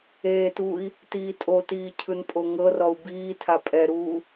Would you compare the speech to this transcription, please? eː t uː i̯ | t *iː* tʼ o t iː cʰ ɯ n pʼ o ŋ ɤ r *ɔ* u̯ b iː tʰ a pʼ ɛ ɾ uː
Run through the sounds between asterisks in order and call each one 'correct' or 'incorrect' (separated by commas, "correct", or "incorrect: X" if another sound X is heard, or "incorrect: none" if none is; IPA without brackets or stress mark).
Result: correct, correct